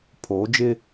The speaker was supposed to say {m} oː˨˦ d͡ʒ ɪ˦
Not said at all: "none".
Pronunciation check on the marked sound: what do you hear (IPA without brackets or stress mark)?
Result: pʰ